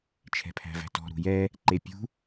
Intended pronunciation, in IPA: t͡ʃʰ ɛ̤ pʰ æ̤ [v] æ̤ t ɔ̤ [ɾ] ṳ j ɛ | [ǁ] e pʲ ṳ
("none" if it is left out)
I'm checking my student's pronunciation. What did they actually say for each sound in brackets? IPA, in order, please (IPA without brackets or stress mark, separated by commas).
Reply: v, ɾ, ǃ